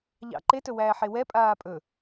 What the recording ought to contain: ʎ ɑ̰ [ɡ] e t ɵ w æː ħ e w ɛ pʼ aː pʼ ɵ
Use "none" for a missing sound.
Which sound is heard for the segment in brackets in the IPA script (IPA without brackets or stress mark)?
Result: ǃ